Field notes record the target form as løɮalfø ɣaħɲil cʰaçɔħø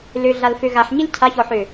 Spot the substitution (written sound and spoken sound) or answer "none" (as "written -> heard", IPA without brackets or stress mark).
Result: none